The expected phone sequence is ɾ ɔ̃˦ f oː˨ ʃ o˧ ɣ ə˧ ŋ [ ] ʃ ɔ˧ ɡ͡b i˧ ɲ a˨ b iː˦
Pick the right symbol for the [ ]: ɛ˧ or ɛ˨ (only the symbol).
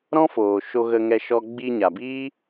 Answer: ɛ˧